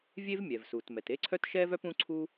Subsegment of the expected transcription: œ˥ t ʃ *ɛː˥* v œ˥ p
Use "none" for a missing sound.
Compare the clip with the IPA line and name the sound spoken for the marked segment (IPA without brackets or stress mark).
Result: ɛː˥